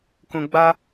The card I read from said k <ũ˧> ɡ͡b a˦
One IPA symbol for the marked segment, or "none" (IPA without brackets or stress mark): ũ˧